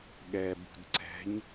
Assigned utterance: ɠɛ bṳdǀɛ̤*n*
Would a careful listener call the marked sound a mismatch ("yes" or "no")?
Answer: yes